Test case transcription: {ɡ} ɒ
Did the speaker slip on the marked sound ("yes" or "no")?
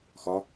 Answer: yes